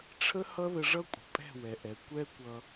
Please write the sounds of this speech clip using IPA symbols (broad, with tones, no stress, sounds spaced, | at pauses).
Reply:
ʈ͡ʂʰ ə˦ h ʌ˦ ð ə˧ ʐ ʌ˦ kʷʼ ə̤˨ pʼ ɛ̤˦˨ w ɛ˨ ʔ ɛ˨ kʷ ɛ˦ kʷ ʌ˧